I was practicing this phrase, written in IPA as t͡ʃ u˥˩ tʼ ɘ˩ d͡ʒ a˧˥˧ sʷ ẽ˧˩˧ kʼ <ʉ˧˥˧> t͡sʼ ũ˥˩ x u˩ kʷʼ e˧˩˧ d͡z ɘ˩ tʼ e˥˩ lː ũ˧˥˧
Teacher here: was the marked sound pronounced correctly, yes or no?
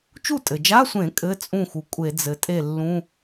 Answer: no